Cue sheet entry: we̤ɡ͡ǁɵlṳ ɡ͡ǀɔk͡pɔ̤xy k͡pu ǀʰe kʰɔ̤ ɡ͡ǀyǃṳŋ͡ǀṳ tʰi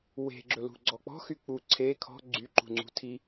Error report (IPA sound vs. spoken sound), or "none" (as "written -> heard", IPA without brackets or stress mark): none